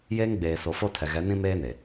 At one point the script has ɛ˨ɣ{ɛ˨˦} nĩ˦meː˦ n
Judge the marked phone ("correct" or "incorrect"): correct